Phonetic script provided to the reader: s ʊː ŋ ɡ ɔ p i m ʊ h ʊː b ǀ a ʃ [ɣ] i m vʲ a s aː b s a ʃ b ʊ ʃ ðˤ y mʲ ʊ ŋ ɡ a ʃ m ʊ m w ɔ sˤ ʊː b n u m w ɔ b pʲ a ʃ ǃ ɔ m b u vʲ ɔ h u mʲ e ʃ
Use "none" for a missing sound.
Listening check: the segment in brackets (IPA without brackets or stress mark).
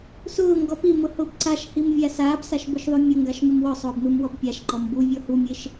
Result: h